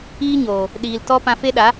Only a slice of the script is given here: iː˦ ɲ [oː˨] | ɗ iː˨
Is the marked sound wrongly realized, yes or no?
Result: no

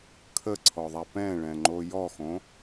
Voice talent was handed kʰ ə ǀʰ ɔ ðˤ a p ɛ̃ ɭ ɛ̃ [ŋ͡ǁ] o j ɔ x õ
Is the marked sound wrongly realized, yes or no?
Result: yes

